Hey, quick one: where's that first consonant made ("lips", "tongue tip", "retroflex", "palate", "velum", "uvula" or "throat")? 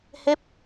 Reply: throat